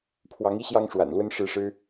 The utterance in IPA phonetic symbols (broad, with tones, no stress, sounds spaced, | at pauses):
pʰ w ɑ˨˦ ŋ i˦ ɕ j ɑ˦ ŋ ʂ w a̰˨˩ n l w ə˦ n ʂ ɻ̩˦ ʂ ɻ̩˦